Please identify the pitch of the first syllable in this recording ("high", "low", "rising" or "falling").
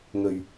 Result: low